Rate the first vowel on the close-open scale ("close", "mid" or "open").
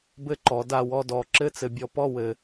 mid